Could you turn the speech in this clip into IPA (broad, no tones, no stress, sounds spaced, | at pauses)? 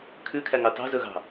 kʰ ʉ kʰ æ ŋ ɑ t ɑ̤ z ɵ ɣ ɑ̤